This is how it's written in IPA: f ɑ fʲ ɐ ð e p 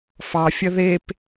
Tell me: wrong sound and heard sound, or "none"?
none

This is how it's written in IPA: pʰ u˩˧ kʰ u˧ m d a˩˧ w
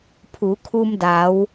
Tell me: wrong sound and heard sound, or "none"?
none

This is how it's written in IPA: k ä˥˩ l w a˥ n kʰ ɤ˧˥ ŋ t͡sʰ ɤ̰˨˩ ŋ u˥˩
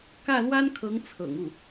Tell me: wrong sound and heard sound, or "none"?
none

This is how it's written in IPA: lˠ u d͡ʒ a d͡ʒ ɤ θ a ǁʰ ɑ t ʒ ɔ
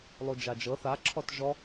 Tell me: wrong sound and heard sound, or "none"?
ɑ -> ɔ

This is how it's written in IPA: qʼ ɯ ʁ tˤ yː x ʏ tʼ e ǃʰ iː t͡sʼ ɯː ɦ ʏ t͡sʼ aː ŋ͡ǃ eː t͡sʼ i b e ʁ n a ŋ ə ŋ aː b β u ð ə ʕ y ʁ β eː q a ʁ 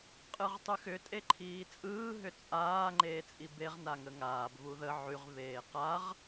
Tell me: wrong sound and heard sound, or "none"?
yː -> y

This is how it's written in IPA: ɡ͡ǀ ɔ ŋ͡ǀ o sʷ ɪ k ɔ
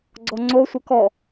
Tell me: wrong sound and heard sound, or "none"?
none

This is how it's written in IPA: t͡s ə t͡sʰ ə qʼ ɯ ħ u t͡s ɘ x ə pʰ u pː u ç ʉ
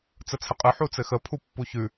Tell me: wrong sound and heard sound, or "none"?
none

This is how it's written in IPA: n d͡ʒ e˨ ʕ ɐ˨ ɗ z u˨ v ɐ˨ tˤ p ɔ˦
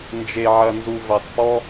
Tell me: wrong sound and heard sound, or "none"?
ɗ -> n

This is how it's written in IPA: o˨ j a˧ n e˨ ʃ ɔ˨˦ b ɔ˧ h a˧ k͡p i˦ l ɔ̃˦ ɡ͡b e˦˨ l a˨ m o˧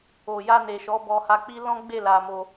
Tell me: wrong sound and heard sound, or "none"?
none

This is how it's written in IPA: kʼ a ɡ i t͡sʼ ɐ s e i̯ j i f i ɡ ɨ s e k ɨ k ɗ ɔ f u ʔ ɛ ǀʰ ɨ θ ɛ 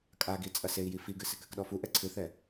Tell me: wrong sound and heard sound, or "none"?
none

